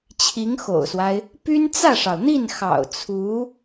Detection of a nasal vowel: absent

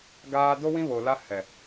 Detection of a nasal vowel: present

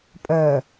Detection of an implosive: absent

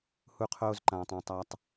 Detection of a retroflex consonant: absent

